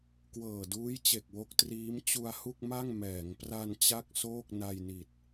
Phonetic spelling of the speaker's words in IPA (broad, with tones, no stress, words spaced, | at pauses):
kwɤː˨˩duː˦˥jt͡ɕe˨˩k̚ wo˦˥k̚triː˦˥m t͡ɕu˧a̯hu˥˩k̚ma˥˩ŋ mɛː˩˦ŋpra˧n t͡ɕa˥˩k̚soː˥˩k̚na˧jni˨˩t̚